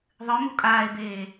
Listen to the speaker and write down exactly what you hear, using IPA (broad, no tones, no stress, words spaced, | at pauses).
ðˤɨmu kʼaːe̯beː